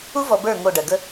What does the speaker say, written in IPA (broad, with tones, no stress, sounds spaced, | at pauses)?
u˦ v ɔ˨ b ə˞˦˨ ŋ o˦˨ ɖ ɜ˨ ɡ ə˦